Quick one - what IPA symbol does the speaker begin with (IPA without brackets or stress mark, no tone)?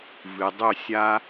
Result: v